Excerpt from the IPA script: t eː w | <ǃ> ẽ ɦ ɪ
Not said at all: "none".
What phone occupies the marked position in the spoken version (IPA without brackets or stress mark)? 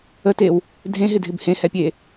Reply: dʱ